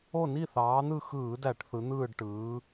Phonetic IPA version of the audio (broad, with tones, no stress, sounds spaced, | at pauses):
o˥˨ n i˥˨ θ ɑː˨˥ n̪ ɯ˥˨ x ɯː˧˩˧ d æ˧˩˧ ʈ θ ɯ˨˥ n̪ ɯː˥˨ ɖ ʈ ɯː˨˥